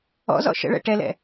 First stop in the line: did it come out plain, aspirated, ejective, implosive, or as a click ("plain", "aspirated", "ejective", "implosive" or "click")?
plain